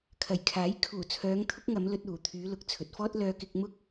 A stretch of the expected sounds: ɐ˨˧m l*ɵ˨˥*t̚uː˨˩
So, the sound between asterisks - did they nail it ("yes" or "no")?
no